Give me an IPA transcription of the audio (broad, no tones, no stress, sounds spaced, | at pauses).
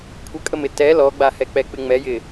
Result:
kʷʰ ə kʼ ə m ɪ t ɛ l ɔ ɡ͡b a h ɛ k͡p ɛ k͡p ɪ ŋ͡m ɛ j ɪ